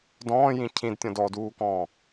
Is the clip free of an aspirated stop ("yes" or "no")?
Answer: no